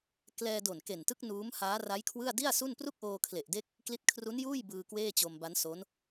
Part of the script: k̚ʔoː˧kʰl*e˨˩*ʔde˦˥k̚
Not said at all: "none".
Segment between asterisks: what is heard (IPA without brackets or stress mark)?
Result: e˨˩